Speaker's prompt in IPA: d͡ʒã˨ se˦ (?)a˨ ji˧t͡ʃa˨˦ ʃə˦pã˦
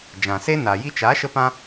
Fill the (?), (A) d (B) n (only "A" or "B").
B